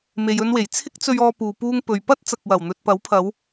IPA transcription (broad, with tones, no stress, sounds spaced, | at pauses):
m e˨ j ɵ˧ n w e˨˩ j t͡sʰ ɪ˧ k̚ t͡s ɵ˨ ɥ ɔː˨ p uː˨ p uː˧ ŋ p ɵ˨ ɥ p ɐ˥ t̚ t͡s ɐ˨ k̚ w ɐ˨˩ w n̪ ɵ˨ t̚ p ɐ˨˥ w pʰ ɐ˨˧ w